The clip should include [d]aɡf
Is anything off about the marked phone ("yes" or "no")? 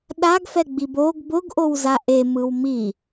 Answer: yes